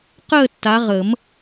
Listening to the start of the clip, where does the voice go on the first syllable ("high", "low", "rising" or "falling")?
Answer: falling